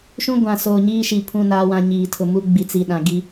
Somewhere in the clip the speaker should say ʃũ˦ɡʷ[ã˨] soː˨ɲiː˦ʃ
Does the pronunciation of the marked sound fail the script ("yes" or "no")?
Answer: no